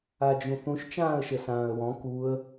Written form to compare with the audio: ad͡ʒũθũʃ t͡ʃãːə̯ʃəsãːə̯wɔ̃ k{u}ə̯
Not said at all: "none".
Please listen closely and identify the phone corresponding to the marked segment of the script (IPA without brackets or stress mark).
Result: u